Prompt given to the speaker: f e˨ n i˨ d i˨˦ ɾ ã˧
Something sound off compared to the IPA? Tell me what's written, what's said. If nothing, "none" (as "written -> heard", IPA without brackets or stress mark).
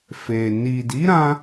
none